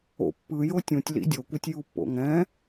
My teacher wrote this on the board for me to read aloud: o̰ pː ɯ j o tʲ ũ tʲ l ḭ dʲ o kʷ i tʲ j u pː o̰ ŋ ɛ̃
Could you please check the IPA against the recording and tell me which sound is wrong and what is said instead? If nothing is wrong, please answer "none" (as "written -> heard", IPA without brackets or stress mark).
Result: none